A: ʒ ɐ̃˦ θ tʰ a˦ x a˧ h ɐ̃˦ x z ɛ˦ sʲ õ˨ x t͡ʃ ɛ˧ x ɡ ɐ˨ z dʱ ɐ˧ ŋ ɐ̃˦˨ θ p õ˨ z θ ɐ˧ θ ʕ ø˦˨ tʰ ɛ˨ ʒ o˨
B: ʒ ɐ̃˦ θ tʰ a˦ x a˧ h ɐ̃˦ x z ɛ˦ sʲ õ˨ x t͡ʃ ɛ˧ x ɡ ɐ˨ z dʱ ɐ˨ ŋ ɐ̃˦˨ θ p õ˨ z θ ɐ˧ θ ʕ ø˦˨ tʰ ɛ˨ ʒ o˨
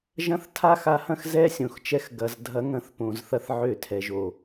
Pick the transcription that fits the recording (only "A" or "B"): A